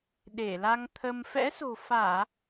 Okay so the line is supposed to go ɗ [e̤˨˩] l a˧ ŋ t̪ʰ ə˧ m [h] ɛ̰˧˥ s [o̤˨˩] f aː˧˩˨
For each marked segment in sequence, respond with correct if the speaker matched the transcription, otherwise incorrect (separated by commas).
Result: incorrect, incorrect, correct